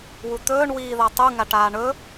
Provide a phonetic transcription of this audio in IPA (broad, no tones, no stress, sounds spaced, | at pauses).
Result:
w u t̪ ɵː ɳ w iː ð a tˤ u ŋ a ʈ aː ɳ ɵ